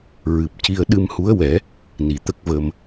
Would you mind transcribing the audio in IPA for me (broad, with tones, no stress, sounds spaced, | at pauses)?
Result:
ɹ ɨ˨˩ p̚ c i˧ ə̯ ɗ ɨ˧ m h u˧˥ ə̯ w ɛ˨˩˦ | n i˨˩ t̪ ə˦˥ k̚ v ə˧ m